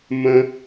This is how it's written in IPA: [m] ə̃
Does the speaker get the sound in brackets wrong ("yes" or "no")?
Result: no